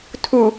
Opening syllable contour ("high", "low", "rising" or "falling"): low